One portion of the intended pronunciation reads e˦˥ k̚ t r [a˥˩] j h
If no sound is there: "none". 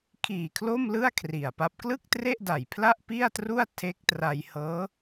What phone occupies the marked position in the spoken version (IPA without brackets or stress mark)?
a˧